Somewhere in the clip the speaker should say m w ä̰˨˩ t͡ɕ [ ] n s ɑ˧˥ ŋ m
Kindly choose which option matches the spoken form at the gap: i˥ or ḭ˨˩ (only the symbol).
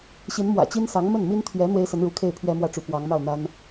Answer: i˥